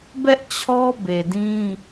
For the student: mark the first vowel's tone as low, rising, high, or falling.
high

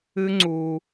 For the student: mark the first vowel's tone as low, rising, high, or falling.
high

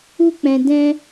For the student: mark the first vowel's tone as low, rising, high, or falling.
high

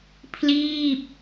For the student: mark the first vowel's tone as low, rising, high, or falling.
falling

